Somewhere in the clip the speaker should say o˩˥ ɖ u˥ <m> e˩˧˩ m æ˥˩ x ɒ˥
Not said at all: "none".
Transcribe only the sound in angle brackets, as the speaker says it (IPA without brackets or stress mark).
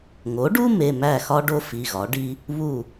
m